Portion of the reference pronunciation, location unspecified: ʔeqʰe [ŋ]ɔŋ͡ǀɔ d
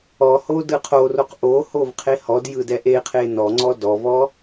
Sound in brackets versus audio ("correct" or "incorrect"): incorrect